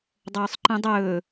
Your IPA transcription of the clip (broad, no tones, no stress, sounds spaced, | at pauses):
dˤ oː sˤ ǃ ĩ dˤ ɵː